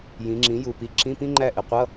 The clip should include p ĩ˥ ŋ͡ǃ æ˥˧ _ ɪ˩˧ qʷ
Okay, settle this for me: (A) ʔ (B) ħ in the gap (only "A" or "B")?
A